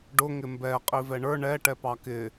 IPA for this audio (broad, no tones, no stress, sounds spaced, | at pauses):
ɖ ʊ ŋ ɪ m b ɛ qʼ i v ɛ ɳ ə˞ ɳ ɛ ʈ ɛ p ɑ k ɪ